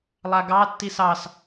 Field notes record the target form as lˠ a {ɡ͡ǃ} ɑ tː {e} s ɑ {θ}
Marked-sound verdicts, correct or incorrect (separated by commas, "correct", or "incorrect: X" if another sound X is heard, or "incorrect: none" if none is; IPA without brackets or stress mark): incorrect: ɡ, incorrect: i, incorrect: s